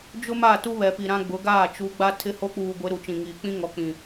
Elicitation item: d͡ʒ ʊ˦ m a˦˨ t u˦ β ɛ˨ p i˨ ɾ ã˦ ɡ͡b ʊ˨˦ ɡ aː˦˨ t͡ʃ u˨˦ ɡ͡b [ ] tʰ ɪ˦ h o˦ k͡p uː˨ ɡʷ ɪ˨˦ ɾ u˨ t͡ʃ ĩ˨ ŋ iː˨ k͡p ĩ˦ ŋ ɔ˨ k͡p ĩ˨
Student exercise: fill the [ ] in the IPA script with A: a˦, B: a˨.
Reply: A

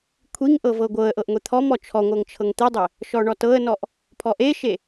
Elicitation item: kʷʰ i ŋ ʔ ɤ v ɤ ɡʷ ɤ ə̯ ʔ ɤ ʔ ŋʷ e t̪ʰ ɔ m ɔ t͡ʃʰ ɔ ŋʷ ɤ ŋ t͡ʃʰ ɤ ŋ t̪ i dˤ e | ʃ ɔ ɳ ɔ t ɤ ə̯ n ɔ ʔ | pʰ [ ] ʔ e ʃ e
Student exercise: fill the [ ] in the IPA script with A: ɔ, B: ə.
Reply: A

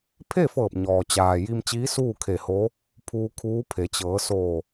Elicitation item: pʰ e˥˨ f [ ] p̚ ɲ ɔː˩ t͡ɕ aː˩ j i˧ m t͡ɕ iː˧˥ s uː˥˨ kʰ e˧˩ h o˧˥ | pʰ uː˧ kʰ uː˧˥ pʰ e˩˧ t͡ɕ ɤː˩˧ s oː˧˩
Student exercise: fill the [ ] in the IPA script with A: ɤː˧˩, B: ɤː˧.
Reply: A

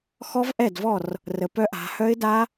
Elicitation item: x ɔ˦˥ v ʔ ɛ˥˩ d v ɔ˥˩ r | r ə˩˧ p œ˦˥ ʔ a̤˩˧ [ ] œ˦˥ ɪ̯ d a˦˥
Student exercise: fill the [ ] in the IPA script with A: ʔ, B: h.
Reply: B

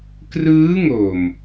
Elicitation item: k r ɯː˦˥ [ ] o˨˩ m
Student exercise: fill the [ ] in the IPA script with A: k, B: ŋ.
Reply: B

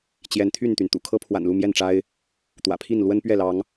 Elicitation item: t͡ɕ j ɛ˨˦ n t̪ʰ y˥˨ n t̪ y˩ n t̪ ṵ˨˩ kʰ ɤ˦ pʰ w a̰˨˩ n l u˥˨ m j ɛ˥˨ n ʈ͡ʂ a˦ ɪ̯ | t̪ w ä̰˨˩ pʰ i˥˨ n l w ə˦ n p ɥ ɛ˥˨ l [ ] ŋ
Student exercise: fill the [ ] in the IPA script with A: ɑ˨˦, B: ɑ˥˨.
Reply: A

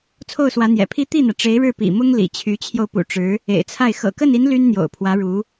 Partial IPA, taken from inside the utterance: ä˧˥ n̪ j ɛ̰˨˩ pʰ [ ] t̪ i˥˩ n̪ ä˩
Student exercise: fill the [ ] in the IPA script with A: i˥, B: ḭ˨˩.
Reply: A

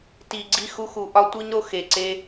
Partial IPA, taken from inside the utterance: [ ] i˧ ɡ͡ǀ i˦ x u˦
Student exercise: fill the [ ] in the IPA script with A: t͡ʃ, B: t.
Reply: B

